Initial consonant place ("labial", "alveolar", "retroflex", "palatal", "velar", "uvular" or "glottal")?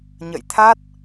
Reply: palatal